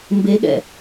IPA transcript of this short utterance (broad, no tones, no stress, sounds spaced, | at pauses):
m b e ɠ ɛ̰